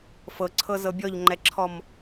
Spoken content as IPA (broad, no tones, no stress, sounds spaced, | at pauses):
f ɤ ǀʰ ɤ z ɤ bʲ ɔ ʎ ŋ͡ǃ ɛ ǁʰ ɔ m